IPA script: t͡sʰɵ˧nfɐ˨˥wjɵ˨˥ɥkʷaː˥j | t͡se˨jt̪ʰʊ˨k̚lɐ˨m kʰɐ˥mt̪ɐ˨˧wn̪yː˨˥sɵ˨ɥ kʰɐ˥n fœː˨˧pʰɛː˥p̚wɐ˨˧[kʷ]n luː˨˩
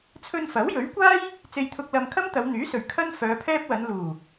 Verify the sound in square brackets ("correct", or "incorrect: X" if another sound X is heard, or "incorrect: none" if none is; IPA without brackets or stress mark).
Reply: incorrect: none